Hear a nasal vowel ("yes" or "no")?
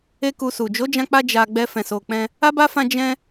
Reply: yes